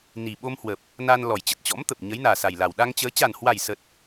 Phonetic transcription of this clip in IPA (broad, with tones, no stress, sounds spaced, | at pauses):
n i˨˩ ɓ o˧ m h w ə˨˩ p̚ | n a˧ n l ɔ˨˩ j t͡ɕ ə˨˩ t̚ t͡ɕ ɔ̰˧˥ m t̪ ə˨˩ p̚ ɲ ə˨˦ j n aː˨˩ s a˨˩ j l a˨˩ w ɗ a˧ ŋ t͡ɕ əː˨˦ t͡ɕ a˨˩ n h w a˨˩ j s ə˨˩ t̚